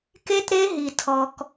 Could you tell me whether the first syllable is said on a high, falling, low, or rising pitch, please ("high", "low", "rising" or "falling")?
high